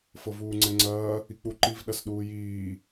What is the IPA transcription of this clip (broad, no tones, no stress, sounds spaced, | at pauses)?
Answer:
f ɤ v uː ŋ͡ǀ ɛ ŋ͡ǀ ɐː | i k͡p u ǃ i v ɗ ɐ s ɗ uː j iː